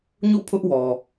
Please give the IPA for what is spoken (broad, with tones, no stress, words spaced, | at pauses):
ɲṵ˦˨pʰʊ˦ʔwɔ˨